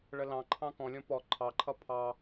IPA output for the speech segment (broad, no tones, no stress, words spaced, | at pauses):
ɭəlɑ̃ǃʰɑ̃ kɔ̃lʲɔ̃ pɔ ǃʰɑǃʰʌ pʰɑ